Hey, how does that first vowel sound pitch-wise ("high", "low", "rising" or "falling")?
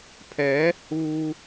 rising